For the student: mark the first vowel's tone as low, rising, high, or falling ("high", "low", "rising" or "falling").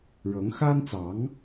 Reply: rising